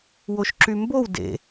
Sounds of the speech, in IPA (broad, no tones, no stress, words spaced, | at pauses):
woʃǁymbow dḛ